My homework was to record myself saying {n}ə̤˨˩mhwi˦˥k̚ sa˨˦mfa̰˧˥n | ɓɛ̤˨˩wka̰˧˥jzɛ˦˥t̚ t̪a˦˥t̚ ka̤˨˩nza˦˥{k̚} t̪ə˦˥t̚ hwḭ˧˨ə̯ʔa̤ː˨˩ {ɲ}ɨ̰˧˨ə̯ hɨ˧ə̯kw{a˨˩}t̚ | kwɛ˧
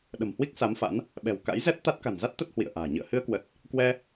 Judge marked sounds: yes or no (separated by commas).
no, no, yes, no